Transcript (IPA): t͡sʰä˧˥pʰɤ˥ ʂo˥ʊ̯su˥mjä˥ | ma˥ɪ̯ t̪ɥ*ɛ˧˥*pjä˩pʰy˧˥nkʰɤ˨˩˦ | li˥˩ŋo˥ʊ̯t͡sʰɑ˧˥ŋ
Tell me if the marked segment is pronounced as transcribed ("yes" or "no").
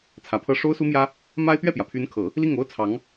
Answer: no